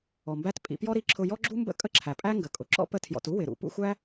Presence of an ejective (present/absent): present